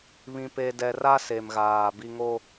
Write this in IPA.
βĩ˨pe˨dɛ˨ra˦ se˨mɣaː˨bi˦ ŋo˦

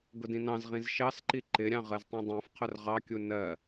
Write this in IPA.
ɡʊdĩnɑ̃zʁĩz ʃɑsǃi ǃɪɾʲɑ̃ ʁɜztˤĩdˤæ̃fqʰʊr ʁɑkʲu nɜ

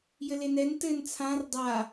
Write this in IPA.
jɘlenɛn tɘn t͡sʰãr dˤa

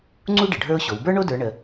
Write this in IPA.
ŋ͡ǀu˥ɖə˩ ɖʱə˞˥ʊ̯ɕo˩˧w bə˞˥ɳo˥ də˞˧˥ɳə˧

